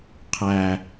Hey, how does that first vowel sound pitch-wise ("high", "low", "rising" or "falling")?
low